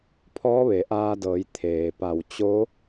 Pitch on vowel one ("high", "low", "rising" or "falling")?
rising